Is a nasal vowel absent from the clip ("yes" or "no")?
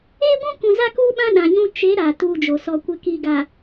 no